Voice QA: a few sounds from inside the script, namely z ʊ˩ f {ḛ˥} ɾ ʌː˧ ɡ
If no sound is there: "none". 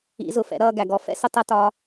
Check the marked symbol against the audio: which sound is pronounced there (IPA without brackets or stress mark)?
ɛ̰˥